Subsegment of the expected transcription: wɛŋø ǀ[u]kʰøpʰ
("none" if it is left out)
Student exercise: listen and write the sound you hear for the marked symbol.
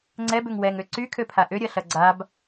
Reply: y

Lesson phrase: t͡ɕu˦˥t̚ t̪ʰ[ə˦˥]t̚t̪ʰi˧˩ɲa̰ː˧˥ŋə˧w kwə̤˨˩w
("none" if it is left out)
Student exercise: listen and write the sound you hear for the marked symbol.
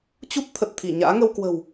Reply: ə˨˩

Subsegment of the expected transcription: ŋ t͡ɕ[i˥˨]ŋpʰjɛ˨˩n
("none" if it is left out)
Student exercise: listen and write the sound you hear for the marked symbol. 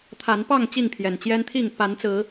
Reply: i˥˨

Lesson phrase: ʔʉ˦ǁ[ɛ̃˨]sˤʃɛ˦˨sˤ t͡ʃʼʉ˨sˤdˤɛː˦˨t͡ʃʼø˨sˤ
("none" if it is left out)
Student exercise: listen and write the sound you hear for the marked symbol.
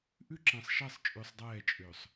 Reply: ɛ̃˨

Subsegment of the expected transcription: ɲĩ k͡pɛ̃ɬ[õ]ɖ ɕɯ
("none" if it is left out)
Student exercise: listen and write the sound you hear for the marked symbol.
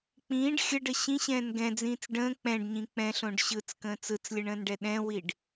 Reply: õ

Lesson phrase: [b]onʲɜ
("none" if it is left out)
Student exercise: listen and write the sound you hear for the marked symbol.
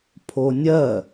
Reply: pʰ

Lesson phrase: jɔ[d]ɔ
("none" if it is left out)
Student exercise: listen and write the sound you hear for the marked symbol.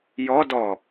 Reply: d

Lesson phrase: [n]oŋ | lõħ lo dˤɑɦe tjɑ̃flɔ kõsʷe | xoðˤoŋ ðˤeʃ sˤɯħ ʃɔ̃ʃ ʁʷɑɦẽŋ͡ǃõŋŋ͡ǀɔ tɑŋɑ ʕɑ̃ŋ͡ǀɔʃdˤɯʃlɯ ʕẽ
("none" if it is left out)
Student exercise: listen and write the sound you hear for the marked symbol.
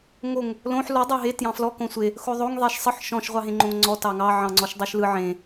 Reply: ŋ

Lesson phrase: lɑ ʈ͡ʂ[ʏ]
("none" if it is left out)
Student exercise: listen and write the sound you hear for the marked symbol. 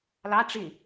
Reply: ɪ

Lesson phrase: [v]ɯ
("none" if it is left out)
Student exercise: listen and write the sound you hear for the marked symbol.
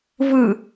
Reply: v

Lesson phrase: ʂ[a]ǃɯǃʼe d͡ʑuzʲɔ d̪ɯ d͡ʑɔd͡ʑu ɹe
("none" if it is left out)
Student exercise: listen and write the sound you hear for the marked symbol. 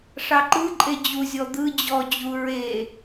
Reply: ɑ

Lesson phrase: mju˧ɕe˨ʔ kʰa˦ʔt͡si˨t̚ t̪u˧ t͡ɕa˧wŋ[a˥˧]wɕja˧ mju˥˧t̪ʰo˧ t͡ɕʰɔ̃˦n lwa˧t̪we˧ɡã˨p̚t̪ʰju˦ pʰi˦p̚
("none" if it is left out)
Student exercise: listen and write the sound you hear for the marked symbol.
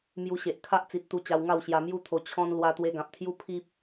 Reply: a˥˧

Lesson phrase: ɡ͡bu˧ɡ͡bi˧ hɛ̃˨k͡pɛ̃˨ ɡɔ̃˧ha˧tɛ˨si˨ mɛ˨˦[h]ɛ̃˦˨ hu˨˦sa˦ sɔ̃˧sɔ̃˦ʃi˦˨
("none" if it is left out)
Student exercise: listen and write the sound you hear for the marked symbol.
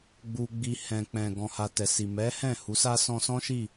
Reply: h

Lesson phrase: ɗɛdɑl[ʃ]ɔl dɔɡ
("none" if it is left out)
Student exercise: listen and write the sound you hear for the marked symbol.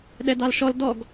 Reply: ʃ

